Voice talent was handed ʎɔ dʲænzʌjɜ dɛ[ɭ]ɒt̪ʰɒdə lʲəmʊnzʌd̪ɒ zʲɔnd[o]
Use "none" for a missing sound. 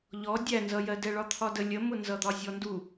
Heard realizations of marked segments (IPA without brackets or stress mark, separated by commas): ɭ, u